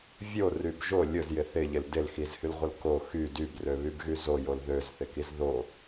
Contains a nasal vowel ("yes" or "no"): no